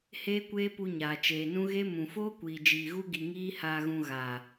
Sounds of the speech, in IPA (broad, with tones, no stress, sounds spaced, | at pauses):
h eː˦ kʷ eː˦ p u˧ ɲ aː˨ t͡ʃ eː˨ n ũ˦ ɣ e˦ m ũ˨ f oː˦ kʷ iː˨ d͡ʒ iː˨ ɣ u˦ ɡ i˨ ŋ iː˦ h aː˧ ɣ ũ˧ ɣ aː˨